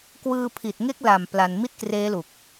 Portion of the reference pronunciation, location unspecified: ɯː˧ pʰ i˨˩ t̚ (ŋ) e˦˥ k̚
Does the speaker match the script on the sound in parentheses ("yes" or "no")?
yes